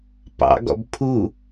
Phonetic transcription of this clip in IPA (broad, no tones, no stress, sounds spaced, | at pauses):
p ɑ̰ ɡ ɔ̰ b pʰ u